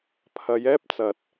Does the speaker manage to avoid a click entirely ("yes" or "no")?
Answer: yes